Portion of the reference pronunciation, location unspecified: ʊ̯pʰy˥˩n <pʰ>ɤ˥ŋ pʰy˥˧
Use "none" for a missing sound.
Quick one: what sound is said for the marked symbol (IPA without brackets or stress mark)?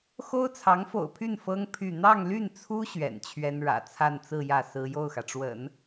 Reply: f